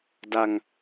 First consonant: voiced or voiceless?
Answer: voiced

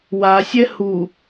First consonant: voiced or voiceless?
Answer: voiced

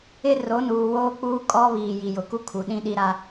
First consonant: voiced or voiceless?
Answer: voiced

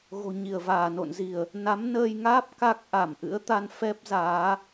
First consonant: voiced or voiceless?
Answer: voiced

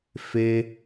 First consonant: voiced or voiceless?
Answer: voiceless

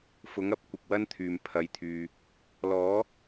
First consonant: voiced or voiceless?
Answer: voiceless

